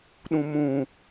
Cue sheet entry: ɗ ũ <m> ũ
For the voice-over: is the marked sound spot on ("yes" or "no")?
yes